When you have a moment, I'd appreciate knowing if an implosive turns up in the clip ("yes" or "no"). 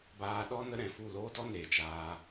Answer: yes